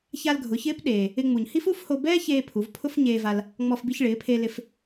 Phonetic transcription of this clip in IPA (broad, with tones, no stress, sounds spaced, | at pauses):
ç a˧ l ɡʱ ʊ˩˧ ç ɪː˧˥ p ɗ eː˩ | ɪ˧ ŋ͡m u˩ ɲ h i˥ f u˥ f h o˧ b ɛː˥ ç eː˧ pʰ u˩˧ v pʰ ʊ˥ f ɲ eː˧ v a˧ l | ŋ͡m ɔ˧ f b i˧ ç ɭ ɪː˩˧ pʰ e˧ l ɪ˧ f